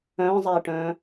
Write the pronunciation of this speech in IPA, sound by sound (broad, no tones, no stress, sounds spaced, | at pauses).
œ̃ː zˤ eː ʈ œ̃ː